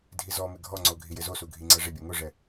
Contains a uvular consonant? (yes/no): no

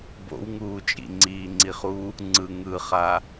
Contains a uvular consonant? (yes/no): yes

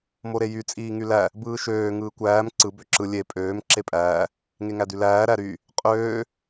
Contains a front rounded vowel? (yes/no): yes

